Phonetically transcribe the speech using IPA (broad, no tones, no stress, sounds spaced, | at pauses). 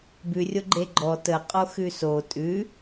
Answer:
b ʉ rʲ o ɡ͡ǃ e ɡ͡ǃ ɔ t ə qʼ o x ʉ s o tʼ ʉ